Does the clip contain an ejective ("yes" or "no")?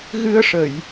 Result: no